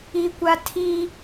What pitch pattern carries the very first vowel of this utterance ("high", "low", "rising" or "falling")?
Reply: high